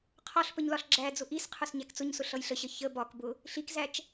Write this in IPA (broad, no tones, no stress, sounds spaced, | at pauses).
qʰ ɒ ɬ p ə ɲ l ɒ ɬ ɡ͡ǁ æ d͡z ʊ ʔ i s qʰ ʊ s ɲ æ k t͡s ʊ ɲ s ʊ ɬ ʌ j ɬ ə ɕ ə ç ə b ɒ k b ʊ | ɬ i k z æ t͡ʃ